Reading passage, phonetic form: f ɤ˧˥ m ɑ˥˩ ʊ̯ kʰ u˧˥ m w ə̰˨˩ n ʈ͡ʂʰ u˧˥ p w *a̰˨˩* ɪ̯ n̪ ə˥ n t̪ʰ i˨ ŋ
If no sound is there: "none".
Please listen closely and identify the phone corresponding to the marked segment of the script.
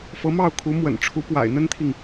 a̰˨˩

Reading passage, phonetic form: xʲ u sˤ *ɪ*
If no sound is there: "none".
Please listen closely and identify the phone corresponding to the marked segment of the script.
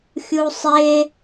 ɪ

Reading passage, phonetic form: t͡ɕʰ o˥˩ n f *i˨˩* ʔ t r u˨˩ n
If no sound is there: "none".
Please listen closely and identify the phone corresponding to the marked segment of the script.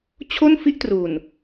i˥˩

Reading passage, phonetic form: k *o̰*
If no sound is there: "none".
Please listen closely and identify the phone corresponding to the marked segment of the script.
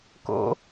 o̰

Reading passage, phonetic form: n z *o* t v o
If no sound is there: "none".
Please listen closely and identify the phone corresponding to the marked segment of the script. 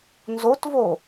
o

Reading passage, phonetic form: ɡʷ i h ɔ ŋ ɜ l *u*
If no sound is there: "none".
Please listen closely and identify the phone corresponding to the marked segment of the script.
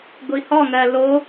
o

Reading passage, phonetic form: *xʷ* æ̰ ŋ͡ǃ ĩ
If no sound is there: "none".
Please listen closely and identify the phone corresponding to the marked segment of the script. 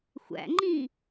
xʷ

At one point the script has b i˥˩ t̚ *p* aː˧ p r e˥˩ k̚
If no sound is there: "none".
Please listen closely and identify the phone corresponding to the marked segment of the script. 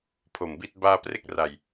b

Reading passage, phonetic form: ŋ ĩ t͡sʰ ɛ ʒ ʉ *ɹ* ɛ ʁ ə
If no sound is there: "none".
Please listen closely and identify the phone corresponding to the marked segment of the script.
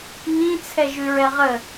ɹ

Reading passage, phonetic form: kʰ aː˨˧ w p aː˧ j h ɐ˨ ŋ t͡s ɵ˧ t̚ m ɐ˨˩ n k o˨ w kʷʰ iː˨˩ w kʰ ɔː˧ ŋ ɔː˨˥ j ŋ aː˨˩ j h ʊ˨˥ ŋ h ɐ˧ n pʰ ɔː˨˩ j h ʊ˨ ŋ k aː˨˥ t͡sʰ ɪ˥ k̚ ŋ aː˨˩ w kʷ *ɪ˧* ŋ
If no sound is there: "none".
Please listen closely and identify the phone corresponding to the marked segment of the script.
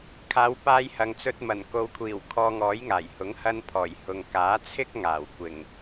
ɪ˨˩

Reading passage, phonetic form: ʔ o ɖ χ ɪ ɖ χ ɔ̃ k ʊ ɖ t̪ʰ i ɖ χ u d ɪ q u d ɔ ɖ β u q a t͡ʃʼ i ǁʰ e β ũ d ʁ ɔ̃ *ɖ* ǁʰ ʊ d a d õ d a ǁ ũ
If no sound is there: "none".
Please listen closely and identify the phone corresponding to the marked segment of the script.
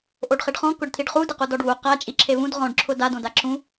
ɖ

